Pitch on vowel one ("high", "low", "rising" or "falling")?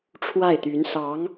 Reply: falling